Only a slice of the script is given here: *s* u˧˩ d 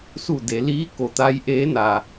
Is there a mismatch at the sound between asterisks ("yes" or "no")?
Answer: no